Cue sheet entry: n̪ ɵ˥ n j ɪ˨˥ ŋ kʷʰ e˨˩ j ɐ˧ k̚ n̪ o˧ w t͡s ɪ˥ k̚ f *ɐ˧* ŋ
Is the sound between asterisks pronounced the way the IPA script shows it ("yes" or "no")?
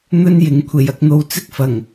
no